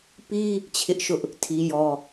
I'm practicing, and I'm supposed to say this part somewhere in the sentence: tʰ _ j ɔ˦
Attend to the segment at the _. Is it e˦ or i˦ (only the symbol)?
i˦